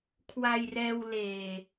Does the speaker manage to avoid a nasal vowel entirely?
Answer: yes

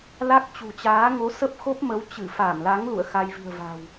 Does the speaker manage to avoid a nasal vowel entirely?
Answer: yes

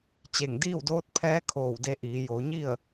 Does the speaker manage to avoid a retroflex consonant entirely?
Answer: yes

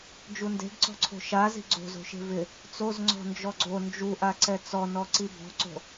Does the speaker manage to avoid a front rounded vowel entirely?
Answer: yes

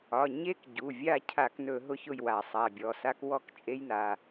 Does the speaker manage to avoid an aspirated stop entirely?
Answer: no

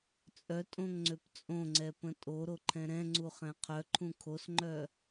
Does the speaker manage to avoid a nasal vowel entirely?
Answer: no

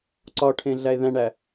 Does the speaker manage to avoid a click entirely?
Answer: no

